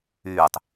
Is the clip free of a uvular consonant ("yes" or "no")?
yes